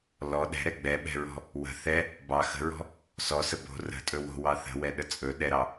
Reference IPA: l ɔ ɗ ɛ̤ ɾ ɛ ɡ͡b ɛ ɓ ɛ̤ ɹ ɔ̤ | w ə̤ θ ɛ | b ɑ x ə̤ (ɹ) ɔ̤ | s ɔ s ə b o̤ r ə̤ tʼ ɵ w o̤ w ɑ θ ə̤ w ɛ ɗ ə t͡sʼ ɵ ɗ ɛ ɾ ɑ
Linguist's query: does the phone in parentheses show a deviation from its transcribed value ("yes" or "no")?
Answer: no